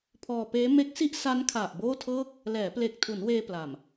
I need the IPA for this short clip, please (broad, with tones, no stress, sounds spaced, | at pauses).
pʰ ɔː˧ p eː˦˥ m e˦˥ k̚ s i˥˩ ʔ s a˦˥ n kʰ a˨˩ ʔ b oː˥˩ tʰ ɤː˥˩ k̚ | l ɛː˩˦ p l e˨˩ k̚ tʰ u˩˦ n w eː˧ p l a˨˩ m